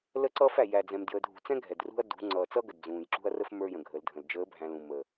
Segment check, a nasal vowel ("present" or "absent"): present